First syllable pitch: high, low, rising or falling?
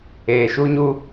low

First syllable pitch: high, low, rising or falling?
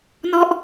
falling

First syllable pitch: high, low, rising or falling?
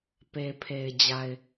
low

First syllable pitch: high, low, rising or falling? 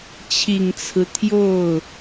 low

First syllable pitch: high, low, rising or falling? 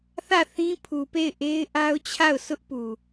falling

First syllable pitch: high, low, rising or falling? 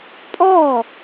falling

